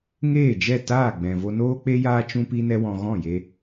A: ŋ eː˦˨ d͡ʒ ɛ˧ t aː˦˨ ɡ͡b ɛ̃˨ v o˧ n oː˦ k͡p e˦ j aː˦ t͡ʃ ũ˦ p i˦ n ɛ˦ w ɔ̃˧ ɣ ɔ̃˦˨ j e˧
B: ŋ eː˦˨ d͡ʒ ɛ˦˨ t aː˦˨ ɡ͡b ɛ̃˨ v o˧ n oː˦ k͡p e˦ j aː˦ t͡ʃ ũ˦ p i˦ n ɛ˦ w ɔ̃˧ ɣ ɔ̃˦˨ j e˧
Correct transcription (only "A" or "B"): B